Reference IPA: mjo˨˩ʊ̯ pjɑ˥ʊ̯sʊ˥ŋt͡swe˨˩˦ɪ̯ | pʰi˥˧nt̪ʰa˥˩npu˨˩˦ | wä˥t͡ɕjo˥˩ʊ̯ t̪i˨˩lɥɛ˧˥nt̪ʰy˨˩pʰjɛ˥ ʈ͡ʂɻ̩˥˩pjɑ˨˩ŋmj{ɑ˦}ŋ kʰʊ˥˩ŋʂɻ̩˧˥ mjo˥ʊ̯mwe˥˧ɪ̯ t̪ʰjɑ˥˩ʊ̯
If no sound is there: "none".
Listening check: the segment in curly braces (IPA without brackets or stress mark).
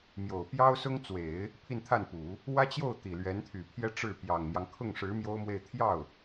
ɑ˦